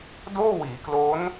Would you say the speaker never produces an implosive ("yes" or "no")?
yes